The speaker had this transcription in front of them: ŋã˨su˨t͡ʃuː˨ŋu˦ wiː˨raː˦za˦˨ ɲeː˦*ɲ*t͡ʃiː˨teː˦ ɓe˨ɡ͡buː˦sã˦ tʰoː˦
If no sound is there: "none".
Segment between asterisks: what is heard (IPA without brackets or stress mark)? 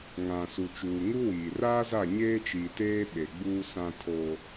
none